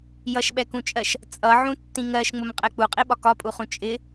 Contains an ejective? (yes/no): yes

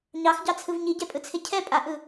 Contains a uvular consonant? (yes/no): no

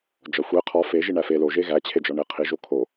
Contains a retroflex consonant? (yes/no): yes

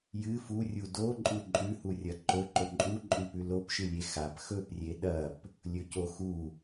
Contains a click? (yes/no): yes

